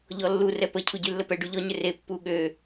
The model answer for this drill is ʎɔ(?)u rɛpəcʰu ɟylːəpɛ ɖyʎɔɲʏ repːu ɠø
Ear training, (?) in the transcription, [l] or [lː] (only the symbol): lː